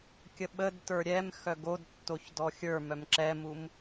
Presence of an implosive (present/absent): present